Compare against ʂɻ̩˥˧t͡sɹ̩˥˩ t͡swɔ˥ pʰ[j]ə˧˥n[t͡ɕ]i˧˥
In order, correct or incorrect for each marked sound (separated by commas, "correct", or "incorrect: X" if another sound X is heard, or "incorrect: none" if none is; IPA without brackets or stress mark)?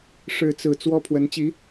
incorrect: w, correct